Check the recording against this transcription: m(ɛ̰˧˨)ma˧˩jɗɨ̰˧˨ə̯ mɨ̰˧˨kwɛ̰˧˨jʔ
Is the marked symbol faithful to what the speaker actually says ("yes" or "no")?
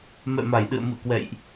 yes